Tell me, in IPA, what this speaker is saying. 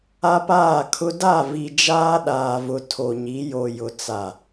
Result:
a˦paː˦˨kʰʊ˦ da˦˨vi˨ d͡ʒaː˦ɗaː˨vʊ˨ tʰo˨ɲi˨˦ jo˨jʊ˨ t͡sa˨

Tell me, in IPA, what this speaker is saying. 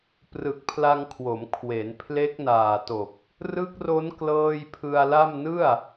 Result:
prɯ˨˩k̚pʰla˧ŋkʰwo˩˦m kʰwe˩˦npʰle˦˥k̚naː˨˩to˨˩k̚ | rɯ˦˥k̚ro˦˥n klɤː˥˩j pʰɯ˧a̯la˥˩m nɯ˥˩a̯

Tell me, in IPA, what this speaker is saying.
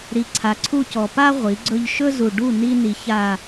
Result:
ɾi˨ǀʰa˨ǀʰu˦˨ cɔ˨pa˦ ʁʷi˨˦ɡ͡ǀɵ˦ʎ ʃɵ˦zu˨ ɖu˦˨ ni˦ni˨ ça˨

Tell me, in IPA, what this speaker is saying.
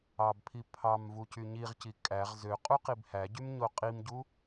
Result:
ɑbpʰi pʰɑm vucyɲiʁci kʼæʁ zø qʼuqibhæɟym ɲoqʼimɟu

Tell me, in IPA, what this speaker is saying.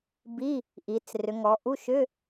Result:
bi˧˥˧ | ʔi˨˦t͡srʏ˨˦ŋɔ˨˦ ʔu˧˥˧ʃʏ˧˥˧

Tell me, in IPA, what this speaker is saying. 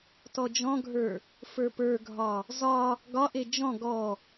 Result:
tɔd͡ʒɔ̃ɡʱə˞ | fə˞pə˞ɡʱɒ | zɒ | ɡɒʔe d͡ʒɔ̃ ɡɔ

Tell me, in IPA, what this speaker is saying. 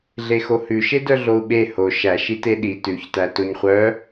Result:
ɮexohʉʃe dœɮou̯ɓe ho ʃæ ʃiteɗi tʉçtæ toɲχʷœ

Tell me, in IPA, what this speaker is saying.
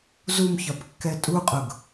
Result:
zumçɒpkːɛ tʼuqʼʊɡ

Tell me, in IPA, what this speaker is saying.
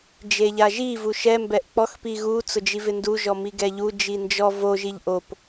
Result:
d͡ʒeʎaʒi vuʃɛ mbɛʔk͡pɔx piɣu t͡sʊd͡ʒivɪndu ʒɔmiɡɛʎu d͡ʒind͡ʒɔ vo ʒiʎʔop

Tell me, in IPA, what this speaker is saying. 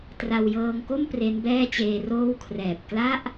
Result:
tra˧wjɤː˧ŋko˥˩m pre˦˥nbɛː˥˩t͡ɕeː˧roː˥˩w kʰrɛː˨˩p̚ kla˥˩ʔ

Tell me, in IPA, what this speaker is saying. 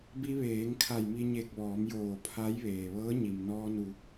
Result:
bi˧ʋeː˩˧ŋ kʰa˧˩jmi˧ɲe˧˩k̚ʋɔː˩˧m joː˧˩pʰa˧˥jʋeː˩ʋɤː˧˥ ɲi˩mnɔː˧ nu˩

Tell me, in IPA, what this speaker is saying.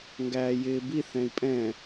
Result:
ŋɡæːjɪːbi θɛ̃i̯pʼɛ̃

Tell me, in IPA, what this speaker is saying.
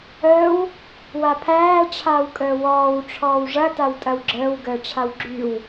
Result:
əːw | wapʰæː ʈ͡ʂʰaːwkʼəːwɔːw ʈ͡ʂʰɔːwʐɐ tawtʼɐwɡ͡ǁəːw ɡəːʈ͡ʂʰawɡ͡ǁyw

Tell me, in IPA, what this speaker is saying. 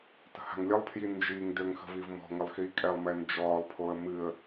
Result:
tə̤ha̤ŋlʲəlˠpʰji nd͡ʒiːŋdøŋ xə̤vivmɔ̤ŋəlˠ xiːkʼɛlˠmɛ nd͡ʒɔːlˠpʰoə̯ mɨə̯

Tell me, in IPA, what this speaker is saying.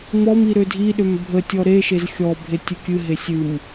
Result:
mɔmi ɾødʱiɗøm bʱətʲɔ ɾe ʃezxʲɔbʱe tʲɨkʲɨɦe sʲɨm

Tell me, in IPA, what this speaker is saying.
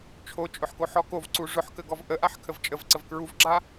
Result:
t͡ʃʰot͡ʃʼʊħkoħɔ kovǀu ʐʊħkəɡɔv ʔəʔaħkʰəv t͡ʃʼəvǀəv kɹuvɡ͡ǁa

